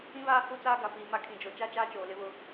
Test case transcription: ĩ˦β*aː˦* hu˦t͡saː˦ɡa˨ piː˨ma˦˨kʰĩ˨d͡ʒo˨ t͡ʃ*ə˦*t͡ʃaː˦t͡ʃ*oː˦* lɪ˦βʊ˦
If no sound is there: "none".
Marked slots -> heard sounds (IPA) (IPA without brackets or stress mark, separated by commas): aː˦, a˦, oː˨